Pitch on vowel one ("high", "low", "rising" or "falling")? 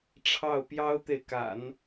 falling